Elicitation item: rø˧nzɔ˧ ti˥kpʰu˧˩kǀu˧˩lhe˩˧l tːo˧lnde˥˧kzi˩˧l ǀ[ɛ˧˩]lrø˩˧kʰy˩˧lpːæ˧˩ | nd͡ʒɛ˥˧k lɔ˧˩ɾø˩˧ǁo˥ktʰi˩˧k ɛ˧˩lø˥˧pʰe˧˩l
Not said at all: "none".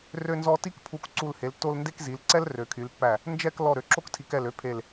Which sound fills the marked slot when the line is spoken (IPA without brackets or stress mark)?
ɛ˥